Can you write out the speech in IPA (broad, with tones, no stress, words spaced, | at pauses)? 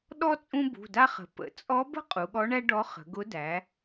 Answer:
ɗɔ˥ t͡sʼũ˥bṳ˩˧˩da˥χə̤˩˧ pə̰˩˧ t͡sʼɔ˧˥bə̤˥ qʼu˩˧ɠɔ˧˥ɳæ˥ ɖɔ˧˥χə̤˩˧ɡʊ˧˥ dæ˩˧